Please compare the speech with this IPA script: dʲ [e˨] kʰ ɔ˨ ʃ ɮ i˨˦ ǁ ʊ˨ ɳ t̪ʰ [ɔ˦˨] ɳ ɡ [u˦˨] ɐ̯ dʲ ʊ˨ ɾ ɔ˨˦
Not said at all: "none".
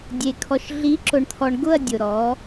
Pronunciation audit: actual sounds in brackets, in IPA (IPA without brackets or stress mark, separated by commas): e˨, ɔ˨, ʊ˦˨